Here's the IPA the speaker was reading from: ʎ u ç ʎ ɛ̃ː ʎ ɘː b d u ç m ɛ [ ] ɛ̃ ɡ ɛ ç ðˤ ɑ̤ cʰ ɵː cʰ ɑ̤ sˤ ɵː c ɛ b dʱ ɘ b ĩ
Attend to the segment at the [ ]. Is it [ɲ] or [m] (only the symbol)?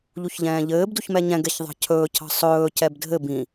ɲ